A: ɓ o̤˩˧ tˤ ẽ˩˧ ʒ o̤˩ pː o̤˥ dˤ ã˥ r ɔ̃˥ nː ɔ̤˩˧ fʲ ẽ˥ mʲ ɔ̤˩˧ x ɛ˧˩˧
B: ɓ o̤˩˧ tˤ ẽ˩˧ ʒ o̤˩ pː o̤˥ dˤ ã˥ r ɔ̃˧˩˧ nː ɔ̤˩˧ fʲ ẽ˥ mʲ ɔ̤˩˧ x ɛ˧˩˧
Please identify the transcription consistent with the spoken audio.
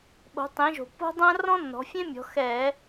A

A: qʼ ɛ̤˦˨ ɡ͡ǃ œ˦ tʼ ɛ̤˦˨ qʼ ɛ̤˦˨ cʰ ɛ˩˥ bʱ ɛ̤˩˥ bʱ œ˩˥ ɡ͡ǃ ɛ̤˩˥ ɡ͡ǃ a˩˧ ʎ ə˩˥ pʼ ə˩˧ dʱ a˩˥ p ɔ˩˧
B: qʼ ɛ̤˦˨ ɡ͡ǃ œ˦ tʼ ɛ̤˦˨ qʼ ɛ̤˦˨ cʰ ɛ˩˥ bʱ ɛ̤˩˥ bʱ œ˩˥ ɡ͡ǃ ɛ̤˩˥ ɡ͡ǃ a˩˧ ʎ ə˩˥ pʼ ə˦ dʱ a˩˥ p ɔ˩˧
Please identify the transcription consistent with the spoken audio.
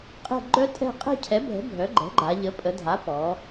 A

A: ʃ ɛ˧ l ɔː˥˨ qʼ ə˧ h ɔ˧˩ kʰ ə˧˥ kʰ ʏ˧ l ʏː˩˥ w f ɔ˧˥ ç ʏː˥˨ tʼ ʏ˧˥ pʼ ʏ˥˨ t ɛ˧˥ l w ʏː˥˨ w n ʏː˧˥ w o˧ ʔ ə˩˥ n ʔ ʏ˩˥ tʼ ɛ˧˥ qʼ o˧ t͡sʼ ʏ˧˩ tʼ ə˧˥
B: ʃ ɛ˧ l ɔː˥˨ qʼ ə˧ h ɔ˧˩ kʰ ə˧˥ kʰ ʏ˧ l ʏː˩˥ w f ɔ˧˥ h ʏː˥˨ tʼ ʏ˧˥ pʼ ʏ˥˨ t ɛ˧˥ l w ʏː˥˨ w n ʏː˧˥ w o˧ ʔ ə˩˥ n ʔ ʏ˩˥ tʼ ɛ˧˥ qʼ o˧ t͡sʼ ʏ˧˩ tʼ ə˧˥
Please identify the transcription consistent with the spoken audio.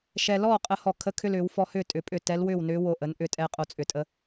B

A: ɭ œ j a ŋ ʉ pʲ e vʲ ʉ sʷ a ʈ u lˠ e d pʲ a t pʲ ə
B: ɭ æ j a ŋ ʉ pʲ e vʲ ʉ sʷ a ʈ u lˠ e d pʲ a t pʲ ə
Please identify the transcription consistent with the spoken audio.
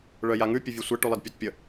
A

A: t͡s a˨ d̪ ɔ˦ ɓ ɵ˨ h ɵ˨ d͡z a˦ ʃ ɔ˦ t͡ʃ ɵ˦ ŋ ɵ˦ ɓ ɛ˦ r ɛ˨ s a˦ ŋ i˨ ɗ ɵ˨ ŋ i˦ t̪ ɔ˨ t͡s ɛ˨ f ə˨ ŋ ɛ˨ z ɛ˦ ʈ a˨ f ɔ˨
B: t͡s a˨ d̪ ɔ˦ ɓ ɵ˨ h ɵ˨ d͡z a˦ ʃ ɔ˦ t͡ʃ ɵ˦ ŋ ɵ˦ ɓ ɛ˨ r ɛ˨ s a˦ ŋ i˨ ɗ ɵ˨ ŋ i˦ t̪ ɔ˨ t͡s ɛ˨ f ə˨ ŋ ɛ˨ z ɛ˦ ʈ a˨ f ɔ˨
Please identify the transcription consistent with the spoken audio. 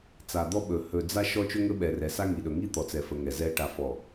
B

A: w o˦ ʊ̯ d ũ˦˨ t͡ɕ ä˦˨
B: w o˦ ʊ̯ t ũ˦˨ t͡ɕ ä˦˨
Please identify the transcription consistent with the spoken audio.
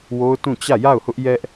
B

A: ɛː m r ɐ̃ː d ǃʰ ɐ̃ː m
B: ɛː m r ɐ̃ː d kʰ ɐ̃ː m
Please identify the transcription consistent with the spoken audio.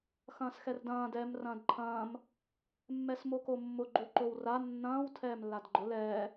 A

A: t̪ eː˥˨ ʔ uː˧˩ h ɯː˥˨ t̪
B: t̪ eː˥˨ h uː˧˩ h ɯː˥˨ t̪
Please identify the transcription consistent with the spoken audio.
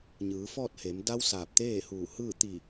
B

